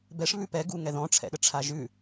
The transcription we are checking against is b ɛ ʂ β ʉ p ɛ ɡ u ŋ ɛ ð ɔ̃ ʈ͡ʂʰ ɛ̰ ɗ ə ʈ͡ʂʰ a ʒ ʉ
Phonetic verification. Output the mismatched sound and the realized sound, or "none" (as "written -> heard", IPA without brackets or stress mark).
none